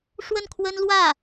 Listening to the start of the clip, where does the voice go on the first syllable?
falling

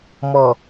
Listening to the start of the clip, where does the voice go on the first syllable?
low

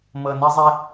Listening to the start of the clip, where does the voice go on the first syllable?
low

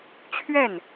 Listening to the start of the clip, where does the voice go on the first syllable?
falling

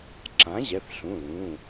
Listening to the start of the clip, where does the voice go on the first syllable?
rising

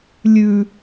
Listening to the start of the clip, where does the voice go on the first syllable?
low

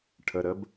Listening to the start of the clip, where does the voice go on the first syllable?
low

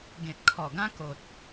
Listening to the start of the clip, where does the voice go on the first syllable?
low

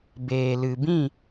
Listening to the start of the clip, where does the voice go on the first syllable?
low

